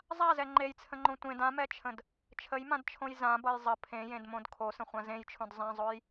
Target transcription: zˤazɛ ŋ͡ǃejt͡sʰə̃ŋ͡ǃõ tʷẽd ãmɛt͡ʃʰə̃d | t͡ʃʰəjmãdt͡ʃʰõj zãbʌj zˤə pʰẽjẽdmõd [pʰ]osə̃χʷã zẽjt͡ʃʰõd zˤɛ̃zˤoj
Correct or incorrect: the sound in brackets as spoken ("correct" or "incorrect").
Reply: incorrect